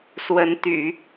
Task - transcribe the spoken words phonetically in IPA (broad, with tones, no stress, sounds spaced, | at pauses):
s w ə˧˥ n t̪ y̰˨˩˦